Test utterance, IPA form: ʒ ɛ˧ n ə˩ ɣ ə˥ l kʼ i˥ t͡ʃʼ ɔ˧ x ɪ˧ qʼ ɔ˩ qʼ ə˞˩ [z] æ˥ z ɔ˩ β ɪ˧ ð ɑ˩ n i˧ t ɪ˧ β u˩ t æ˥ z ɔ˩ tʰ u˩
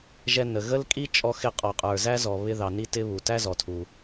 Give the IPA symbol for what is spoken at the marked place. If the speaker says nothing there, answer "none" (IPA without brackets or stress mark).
z